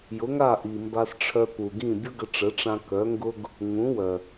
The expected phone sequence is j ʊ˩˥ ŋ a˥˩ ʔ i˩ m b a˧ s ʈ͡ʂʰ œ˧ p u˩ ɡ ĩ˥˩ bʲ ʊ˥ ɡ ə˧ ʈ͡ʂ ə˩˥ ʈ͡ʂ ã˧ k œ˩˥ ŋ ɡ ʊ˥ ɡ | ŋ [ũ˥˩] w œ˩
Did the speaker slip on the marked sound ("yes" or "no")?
yes